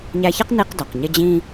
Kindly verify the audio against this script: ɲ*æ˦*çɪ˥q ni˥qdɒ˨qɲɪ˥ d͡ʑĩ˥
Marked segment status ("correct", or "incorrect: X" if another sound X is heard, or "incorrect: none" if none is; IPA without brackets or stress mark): correct